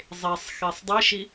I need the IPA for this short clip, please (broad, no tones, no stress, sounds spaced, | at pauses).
zˤ e sˤ x e sˤ dˤ i ʃ i